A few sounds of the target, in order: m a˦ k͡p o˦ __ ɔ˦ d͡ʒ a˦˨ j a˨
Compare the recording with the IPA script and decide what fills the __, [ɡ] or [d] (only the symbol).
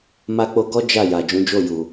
ɡ